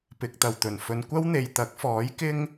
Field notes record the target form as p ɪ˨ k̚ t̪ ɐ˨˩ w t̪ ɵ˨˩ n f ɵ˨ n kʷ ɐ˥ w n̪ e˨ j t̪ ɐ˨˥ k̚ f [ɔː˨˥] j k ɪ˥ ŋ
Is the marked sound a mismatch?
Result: no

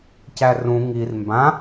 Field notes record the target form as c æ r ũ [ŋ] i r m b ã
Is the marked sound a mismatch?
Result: no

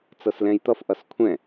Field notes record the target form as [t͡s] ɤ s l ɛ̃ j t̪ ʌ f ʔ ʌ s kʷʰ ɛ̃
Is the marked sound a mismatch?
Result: no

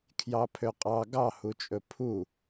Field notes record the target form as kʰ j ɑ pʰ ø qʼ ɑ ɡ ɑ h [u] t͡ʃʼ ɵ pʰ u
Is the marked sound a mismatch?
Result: no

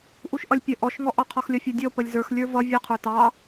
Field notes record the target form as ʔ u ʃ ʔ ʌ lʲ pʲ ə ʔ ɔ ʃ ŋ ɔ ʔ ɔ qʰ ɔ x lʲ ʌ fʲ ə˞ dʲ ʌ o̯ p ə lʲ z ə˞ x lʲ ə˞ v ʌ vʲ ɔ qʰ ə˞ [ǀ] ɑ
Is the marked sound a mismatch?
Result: yes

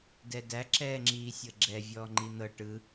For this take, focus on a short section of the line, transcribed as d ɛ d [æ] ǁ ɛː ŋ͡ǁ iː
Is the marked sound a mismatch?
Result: no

